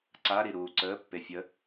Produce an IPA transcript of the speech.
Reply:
ǀaɾiɾuː ǀəːpːe fʲə

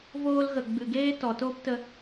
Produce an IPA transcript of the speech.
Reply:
voː˧lɣə˨ ɡ͡bɨ˨ɡeː˦ tɔ˨toː˦ptə˧

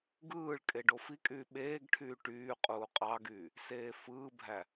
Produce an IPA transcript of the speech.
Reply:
ɡɯːɭkʼe ɖofikʼyː ɓeːɡʈʰyː ʈyː qʼuːqʼɑɡyː | seːfɯːbʱæ

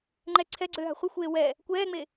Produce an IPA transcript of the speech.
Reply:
ŋ͡ǃɛ ǀʰɛɡ͡ǀøːɦa̤ χʷɯxʷeː wɛ | kʷɛːŋ͡me

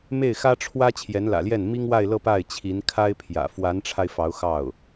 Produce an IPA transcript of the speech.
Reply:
me˥˩ɪ̯xä˥ʈ͡ʂʰwä˥ t͡ɕʰjɛ˧˥nlä̰˨˩ljɛ˥˩n mi˥ŋwa˥˧ɪ̯lɤ˥˧ pa˥˩ɪ̯t͡ɕʰi˧˥n kʰa˥ɪ̯pʰjä̰˨˩ fwa˧˥nʈ͡ʂʰa˧ɪ̯ fɑ˧˥ʊ̯xɑ˥˩ʊ̯

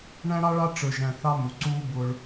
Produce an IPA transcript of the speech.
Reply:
ɳæ̃˦ɽɑ˦ɭɑ˦ ʈ͡ʂə˞˨ʒæ̃˨θɑ˦ mu˨ ǀuː˦ bʊ˦ɭ

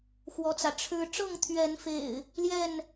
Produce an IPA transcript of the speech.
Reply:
xwɔ˦t͡sä˨ ʈ͡ʂʰɻ̩˦ ʈ͡ʂɤ˥˨ŋt̪ʰɥɛ˨˦nfḛ˨˩ɪ̯ | ljɛ˥˨n

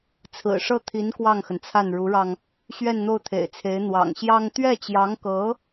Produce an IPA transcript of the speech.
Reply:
t͡sʰɹ̩˨˩ʂɤ˥˩t̪ʰi˧˥n kwɑ˥˩ŋxə˩nt͡sʰa˥˩n ɻu˧˥ɻɑ˧ŋ | ɕɥɛ˥˧nn̪o˥˩ʊ̯t̪ʰḛ˨˩ɪ̯t͡sʰe˧˥ɪ̯ n̪wɑ̰˨˩ŋɕjɑ˥ŋ t̪ɥɛ˥˩t͡ɕjɑ˧˥ŋkɤ˧˥

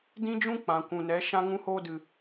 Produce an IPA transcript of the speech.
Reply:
dĩ˦d͡ʒũ˦ k͡pã˨kʷũ˨nɛ˨˦ ʃã˧ŋũ˧hoː˧dɨ˨

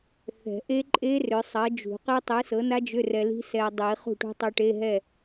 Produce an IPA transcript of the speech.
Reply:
θɛ̤˨˩˦ ʔe˦˥ǃʼe˦˥ rʏ˨˥sˤɜ˨˥d͡ʒṳ˨˩˦ qe˦˥tˤɨ˨˥sɤ˨˥na˦˥ d͡ʒʏ˧˥˧rɛ˧li̤˦˥ sɛ˧dˤi˨˩˦ χṳ˥˨ʈṳ˦˥tˤu˧ʈe˧˥˧ ɦɛ˥˨

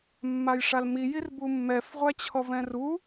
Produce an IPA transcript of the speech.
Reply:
mːajʂalmi jirbumːɛf ʁʷæt͡ɕʰɔvɛ̃ru

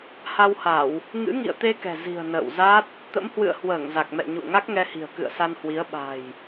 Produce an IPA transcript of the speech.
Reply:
ha˧wha˧˩˨w | ŋɨ̰˧˥ŋḭ˧˨ə̯t̪e˧kɛ̤˨˩ zi̤˨˩ə̯ nə̰ː˧˨wza˦˥t̚ | t̪ə̰˧˥mhwɨ̰˧˨ə̯ hwəː˧˩ŋ za˨˩k̚mɛ̰˧˨ ɲṵ˧˨ə̯ŋa˦˥k̚ŋɛ˧hi̤˨˩ə̯ kɨ̰˧˨ə̯sa˧nhwi˨˦ə̯ ɓa̤˨˩j

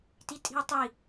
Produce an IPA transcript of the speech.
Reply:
titʼi̤ə̯tˤi

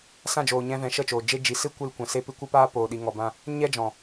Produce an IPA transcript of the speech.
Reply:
sã˦˨d͡ʒoː˨ɲɛ̃˧vɛ̃˨ ʃə˦˨t͡ʃoː˨ d͡ʒe˧ d͡ʒi˨sɨ˦ kʷɨ˧lkʷã˨se˧pɨ˧ kʷə˦paː˦ poː˧ɗi˧ŋɔ˧bã˦ | ɲɛ˦d͡ʒɔ̃˨

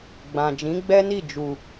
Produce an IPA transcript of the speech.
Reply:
ɡ͡bã˨d͡ʒĩ˨˦ɡ͡bɛ˦ni˦˨ d͡ʒu˨

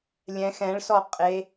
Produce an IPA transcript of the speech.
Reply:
lʲɛ̃x ɛ̃ɭsɔqʼe

